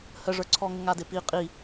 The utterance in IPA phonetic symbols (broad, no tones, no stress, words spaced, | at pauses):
həʐə˞ǀʰɔŋə ŋadɪpi qʼi